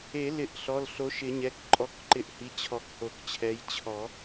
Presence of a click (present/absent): present